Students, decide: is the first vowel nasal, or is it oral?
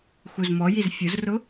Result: oral